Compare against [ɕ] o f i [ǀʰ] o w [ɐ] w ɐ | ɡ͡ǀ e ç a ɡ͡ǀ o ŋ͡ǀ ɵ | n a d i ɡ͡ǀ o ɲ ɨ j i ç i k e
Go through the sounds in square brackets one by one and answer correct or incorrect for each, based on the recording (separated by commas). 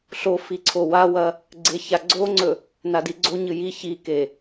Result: incorrect, correct, incorrect